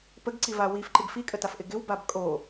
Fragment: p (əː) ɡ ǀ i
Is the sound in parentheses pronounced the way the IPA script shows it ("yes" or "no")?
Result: no